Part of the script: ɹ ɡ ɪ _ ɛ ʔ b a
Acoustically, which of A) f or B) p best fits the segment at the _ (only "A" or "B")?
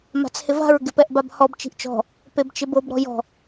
B